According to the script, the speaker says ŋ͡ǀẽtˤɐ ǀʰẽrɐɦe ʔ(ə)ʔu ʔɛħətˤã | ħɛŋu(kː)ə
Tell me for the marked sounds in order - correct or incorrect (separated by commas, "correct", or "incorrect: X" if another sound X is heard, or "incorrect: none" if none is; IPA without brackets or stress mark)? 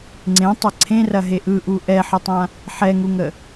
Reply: incorrect: ɯ, incorrect: ŋ